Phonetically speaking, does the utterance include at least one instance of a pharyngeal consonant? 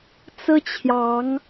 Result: no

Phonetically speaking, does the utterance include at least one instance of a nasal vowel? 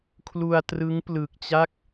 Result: no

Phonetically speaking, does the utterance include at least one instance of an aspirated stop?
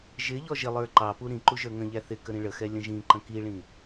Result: no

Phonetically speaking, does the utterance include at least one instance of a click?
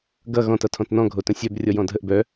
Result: no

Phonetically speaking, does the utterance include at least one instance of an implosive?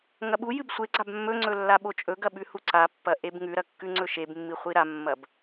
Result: yes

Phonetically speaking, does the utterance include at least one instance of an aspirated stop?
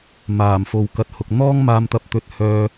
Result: no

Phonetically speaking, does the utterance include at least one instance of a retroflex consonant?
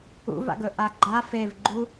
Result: no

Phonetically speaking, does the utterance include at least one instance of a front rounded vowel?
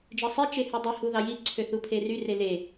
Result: yes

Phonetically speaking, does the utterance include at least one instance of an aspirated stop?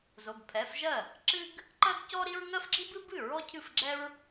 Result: yes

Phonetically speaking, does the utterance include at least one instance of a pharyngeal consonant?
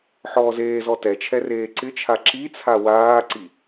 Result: yes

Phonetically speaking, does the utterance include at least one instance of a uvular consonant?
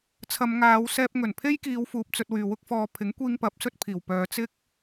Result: no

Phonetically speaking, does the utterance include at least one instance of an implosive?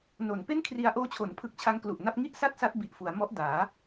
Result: no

